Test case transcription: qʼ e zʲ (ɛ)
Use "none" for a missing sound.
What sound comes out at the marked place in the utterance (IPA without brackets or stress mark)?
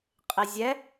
ɛ